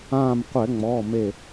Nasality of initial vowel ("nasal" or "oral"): nasal